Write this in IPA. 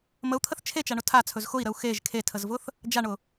məu̯t̪ʰəθ t͡ʃʰet͡ʃaɳʊ tʰat͡sʰɵz xʊi̯ɾəu̯ xeʒ kʰetʰəzvʊθ | d͡ʒaɳʊ

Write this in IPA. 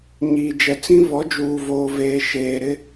ɲiː˨d͡ʒɛ˨t͡sĩ˦ vɔ˨˦d͡ʒuː˨voː˨ veː˨ ʃeː˨ ɾɪ˦

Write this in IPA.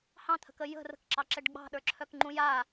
hɑ̃t̪ʰə̤kə jə̤ rə̤kǁɑǁɛɖ ɡ͡bɑ̤ɗə˞ǁʰœkŋ͡ǃũ ja

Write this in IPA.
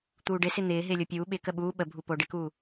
t̪uːɖɪsɪ n̪ɪː ɦɪːlʲopʲuː ɓɪ kəɓuː ɓəbʱupo ɖɪkuː

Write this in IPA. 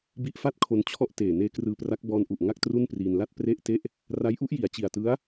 bi˦˥ʔfa˥˩t̚kʰo˧n t͡ɕʰɔ˥˩ʔteː˨˩ neː˦˥krɯː˧pra˦˥k̚ bɔː˧nʔu˨˩ʔ ŋa˥˩k̚tru˥˩npriː˧nla˥˩t̚ pre˦˥ʔte˦˥ʔ | ra˦˥jʔu˦˥ʔji˨˩a̯t͡ɕi˨˩a̯ tɯ˦˥a̯

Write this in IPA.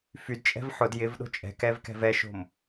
fydt͡ʃʼɛ̤v ħʊd jɪvɗo̤ t͡ʃʼɛ̤kɛv kɛ̤vɛʃo̤m

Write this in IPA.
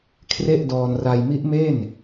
kʰre˥˩ʔdɔː˧nra˧j mi˦˥ʔme˥˩n

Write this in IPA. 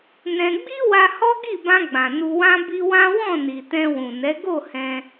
nɛ̃˧ ɡ͡bi˦wa˧ hɔ˦ɡi˦˨bã˧ ɡ͡bã˨nu˧wã˦ bi˦ wã˦wɔ̃˦˨ni˨ tɛ̃˧wũ˨nɛ˨˦ ɡo˦˨hɛ̃˧

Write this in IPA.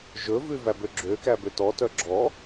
ʒɵvʉ væbøɡ͡ǁøkæ bøtɔtœ ɡ͡ǁɔ

